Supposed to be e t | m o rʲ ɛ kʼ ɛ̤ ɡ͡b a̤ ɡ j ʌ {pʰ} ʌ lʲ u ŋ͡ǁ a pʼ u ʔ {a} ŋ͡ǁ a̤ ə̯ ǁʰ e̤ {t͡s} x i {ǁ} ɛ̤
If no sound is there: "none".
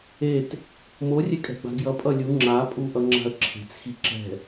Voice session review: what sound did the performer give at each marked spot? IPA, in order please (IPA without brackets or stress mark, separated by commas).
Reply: pʼ, ʌ, t͡s, ǁ